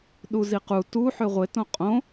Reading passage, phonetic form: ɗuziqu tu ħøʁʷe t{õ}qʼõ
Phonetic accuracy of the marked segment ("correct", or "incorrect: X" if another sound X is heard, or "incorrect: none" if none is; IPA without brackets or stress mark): correct